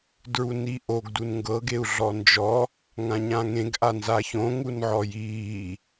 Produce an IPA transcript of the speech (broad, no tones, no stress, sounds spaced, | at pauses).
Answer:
d ɹ u n i ʔ o ɡ d u n ŋ ɡ ɤ ɡ e u̯ ɮ ɔ n d͡ʒ ɔ | ŋ ã ɲ ã ŋ ẽ ɡ ʔ a n z a ç õ ŋ u n ʕ ɔ j iː